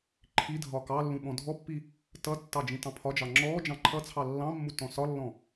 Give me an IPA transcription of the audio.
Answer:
ǃʰ i dʱ ɒ k ɑ lː ũ ɓ ɔ̃ dʱ ɔ pː i | t ʌ tː ɑ d͡ʒ ĩ t ɑ̃ pʰ ɒ d͡ʒ ɑ ŋ͡ǁ ɔ d͡ʒ ɑ̃ ǃʰ ʌ t͡sʰ ɑ lː ɑ̃ mː u t ɔ̃ s ɒ lː ɔ̃

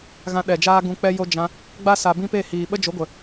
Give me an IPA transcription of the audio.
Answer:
ɣ ã˧ ɗ ɛ˨ d͡ʒ aː˧ ɡ ũ˨ k͡p ɛ˧ j o˧ d͡ʒ ã˧ | ɡ͡b a˦ s a˨ b ĩ˦ p e˦˨ h iː˨ ɓ ə˦ d͡ʒ o˨˦ ɡʷ ə˨

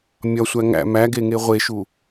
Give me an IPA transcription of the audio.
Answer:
mʲ ɒ sʷ æ ŋ æ̰ m æ ɡ e ŋ e ʁʷ e ʃ u

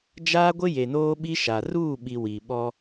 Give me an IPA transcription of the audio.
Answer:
d͡ʒ aː˦ ɡʷ ɪ˦ j e˨ n oː˦ ɓ i˦ ʃ a˨ r uː˦˨ ɓ i˨ w i˨ ɓ ɔ˦

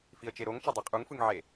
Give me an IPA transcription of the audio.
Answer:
f i ə̯ t͡ʃ e ɾ o ŋ t͡ʃ ʌ dˤ e qʼ u ŋ f ɯ ŋ ʕ e

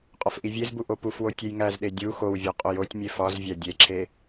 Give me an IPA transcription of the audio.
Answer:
qʼ ɒ f ʔ i vʲ e z b u ʔ o p u f w o tʲ e j ŋ æ z ɗ e dʲ u x o w vʲ ɒ qʼ o j o tʲ mʲ e f ɒ z vʲ æ dʲ e ǁʰ e

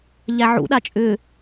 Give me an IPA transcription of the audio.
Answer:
ʎ æ ʕ ṵ ɗ a t͡ʃʼ ʏ

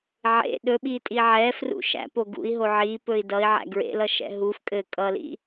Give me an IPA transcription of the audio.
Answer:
ʕ ḛ ɗ ɵ ɓ i tʼ i ʕ ɛ f r ṵ ʃ æ̰ p o ɡ ṵ i̯ ɦ o ʕ i p ɵ i̯ d ʌ i̯ ʕ æ̰ ɡ ɹ ḛ l ʌ ʃ ɛ̰ ɦ u f kʼ ɘ kʼ ʌ l ḭ

